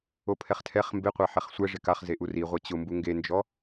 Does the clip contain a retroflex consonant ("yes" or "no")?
yes